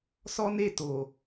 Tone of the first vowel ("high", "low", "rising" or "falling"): high